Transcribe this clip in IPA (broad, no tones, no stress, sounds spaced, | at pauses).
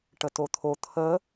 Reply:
ʈ ə t o t̪ʰ o t̪ʰ ə